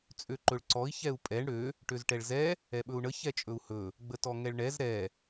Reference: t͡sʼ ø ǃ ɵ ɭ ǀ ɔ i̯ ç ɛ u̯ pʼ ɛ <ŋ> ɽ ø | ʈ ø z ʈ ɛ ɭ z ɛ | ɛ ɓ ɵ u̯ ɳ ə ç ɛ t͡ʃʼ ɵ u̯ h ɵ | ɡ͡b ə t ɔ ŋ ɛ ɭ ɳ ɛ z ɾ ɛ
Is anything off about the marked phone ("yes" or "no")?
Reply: yes